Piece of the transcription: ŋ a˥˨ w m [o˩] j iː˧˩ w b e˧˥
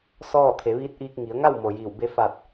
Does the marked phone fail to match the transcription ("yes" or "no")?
no